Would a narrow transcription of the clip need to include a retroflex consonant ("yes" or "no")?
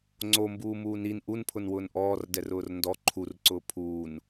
no